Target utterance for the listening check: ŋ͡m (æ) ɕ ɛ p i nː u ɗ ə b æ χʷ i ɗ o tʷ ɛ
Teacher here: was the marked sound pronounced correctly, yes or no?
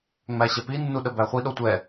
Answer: yes